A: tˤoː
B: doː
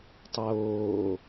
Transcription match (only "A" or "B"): A